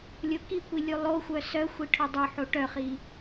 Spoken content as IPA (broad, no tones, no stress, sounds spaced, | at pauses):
lʲ o k i kʷ i lʲ u lˠ o xʷ œ s œ xʷ i ʈʰ o dˤ o ħ o ʈ œ χ i